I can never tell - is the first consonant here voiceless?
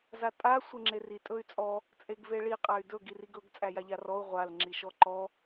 no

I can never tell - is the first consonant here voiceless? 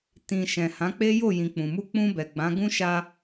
yes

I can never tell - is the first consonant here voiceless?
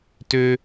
yes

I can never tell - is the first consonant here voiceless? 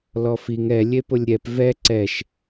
no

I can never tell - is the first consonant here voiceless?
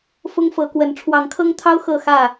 yes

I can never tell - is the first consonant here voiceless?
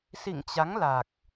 yes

